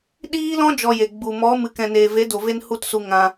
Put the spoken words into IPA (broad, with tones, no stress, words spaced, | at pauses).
ɗiː˦lɔ̃˦ d͡ʒɔ˧je˨ɡ͡bu˨ mɔ˨˦ mɨ˨kɛ̃˨neː˨ ve˨˦do˨ve˧n hu˦˨tsu˧ ŋã˧